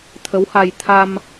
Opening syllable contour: rising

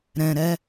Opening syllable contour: low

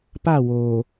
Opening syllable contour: falling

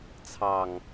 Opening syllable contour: low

